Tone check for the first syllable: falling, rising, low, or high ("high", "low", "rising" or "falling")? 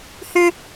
high